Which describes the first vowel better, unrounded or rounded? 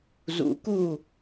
rounded